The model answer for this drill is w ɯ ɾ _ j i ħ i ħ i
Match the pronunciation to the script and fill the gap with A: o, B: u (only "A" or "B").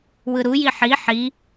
B